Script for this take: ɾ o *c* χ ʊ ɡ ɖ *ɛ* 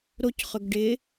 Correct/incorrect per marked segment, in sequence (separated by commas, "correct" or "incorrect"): correct, incorrect